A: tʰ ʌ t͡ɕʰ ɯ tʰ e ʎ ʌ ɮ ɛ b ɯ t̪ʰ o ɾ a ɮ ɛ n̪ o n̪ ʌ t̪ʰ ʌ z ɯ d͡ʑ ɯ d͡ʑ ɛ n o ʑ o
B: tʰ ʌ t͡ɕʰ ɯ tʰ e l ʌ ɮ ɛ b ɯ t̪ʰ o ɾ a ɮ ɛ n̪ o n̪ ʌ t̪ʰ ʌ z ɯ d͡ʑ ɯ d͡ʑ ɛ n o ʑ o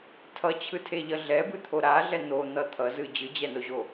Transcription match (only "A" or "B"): A